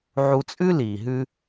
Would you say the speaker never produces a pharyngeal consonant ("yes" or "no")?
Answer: no